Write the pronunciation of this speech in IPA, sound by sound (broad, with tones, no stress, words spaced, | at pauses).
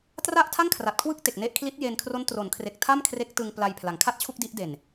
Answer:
tra˥˩ʔtʰa˥˩ŋkʰra˨˩t̚ kʰwɯ˥˩k̚te˨˩k̚ne˦˥ʔkʰli˦˥t̚ jeː˧nkʰro˦˥n tro˩˦nkʰre˨˩k̚ tʰa˥˩mkʰre˦˥k̚ tɯ˧ŋ pla˧jpʰla˩˦ŋkʰa˥˩t̚t͡ɕʰu˥˩k̚ di˦˥ʔde˨˩n